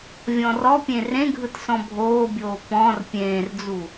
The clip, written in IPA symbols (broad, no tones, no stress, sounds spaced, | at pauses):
vʲ ɔ̃ r ɔ pʲ ẽ r ẽ ɡʱ ɯ t s ɔ̃ bʱ oː bʲ oː p ɔ̃ r pʲ ẽː r d͡z u